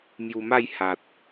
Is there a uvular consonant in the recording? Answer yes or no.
no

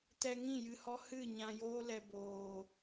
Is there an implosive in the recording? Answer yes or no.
no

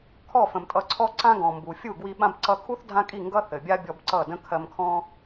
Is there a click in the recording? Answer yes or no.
yes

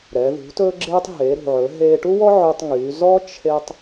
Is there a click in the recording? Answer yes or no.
yes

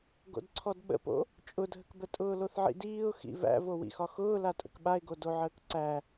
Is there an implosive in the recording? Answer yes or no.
yes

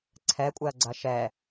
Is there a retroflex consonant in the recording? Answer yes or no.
no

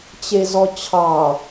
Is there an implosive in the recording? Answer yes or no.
no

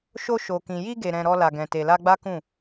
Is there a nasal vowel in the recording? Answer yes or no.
yes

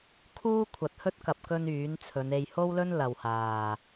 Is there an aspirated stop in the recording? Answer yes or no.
yes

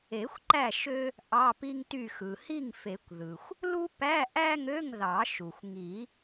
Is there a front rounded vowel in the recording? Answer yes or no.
yes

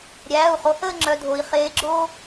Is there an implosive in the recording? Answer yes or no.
no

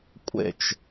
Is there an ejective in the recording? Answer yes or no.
yes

